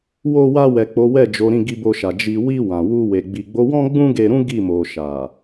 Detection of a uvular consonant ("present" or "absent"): absent